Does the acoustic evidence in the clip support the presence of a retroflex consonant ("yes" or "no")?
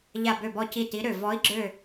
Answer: no